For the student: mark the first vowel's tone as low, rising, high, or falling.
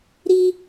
high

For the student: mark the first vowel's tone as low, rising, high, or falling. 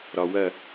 low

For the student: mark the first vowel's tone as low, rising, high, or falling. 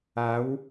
rising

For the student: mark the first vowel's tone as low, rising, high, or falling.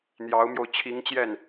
rising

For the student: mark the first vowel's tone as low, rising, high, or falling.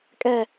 falling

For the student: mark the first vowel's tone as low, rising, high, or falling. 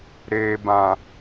low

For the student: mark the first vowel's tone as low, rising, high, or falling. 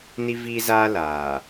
high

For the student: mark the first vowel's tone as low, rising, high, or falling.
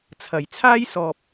low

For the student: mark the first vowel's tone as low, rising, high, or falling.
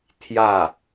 falling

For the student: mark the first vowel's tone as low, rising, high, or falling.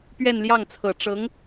falling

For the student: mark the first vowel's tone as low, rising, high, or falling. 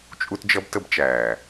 high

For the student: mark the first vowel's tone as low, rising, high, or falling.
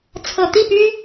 low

